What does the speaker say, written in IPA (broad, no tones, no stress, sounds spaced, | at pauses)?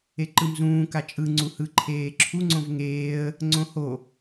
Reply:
e ǃ ɯ m z ũː k a t͡ʃʼ ɯ ŋ͡ǀ u h ɯ ǃʰ eː ǁʰ u ŋ͡ǀ õ v ŋ eː ə̯ | ŋ͡ǀ õ h o